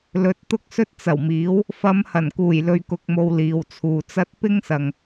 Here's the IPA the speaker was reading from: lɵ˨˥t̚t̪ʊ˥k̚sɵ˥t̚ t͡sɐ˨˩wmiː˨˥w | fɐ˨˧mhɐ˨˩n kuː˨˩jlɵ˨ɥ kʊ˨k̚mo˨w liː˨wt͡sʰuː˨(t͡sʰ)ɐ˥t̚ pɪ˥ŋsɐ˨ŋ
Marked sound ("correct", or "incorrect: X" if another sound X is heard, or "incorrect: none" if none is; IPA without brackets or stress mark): incorrect: t͡s